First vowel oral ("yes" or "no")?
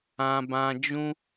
no